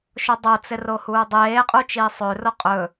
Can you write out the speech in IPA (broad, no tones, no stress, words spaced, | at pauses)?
ʃodˤot͡sɪ rohuːdˤeːqʼu t͡ʃiːsˤøro qʼɵ